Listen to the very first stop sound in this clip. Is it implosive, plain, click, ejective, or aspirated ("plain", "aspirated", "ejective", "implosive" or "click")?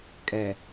ejective